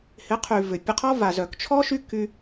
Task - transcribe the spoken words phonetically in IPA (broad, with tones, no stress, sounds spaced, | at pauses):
h ɪ˨˦ qʰ y˨ v ʏ˨ pʲ ə˧ qʰ ɔ˦ v a˨ z œ˨ k t͡ʃʰ ɔ˦ ʃ y˦ k y˧